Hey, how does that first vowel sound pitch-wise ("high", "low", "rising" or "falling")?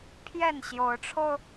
falling